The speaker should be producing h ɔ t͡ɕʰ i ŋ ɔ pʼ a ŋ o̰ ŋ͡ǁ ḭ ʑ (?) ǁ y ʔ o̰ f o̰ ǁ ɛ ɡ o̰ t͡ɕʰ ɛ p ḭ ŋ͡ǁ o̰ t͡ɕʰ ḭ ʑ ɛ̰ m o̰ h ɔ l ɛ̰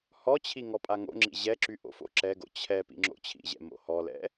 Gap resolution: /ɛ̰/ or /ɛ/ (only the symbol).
ɛ